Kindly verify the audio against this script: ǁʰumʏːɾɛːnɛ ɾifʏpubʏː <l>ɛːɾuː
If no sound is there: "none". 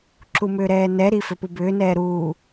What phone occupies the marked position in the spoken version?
n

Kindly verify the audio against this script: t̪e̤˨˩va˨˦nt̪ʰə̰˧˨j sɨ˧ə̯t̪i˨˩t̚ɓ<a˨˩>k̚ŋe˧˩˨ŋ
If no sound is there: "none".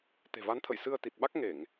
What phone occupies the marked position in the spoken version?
a˦˥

